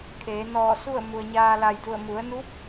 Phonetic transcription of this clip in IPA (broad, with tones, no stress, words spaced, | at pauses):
kʰeː˩˧ nɔː˧˩su˥˨ə̯ mu˩ə̯ɲaː˧la˧˩jdu˧˩ə̯ mu˩˧ə̯nu˧˥p̚